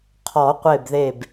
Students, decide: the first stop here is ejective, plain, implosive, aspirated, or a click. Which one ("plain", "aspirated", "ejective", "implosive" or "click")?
aspirated